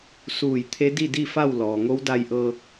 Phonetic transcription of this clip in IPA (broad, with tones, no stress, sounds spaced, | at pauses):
s uː˧˩ j t̪ʰ e˧˥ d i˥˨ d i˥˨ f a˥˨ w l ɔː˩ ŋ o˧˥ w d a˧ j ʔ ɤː˧ k̚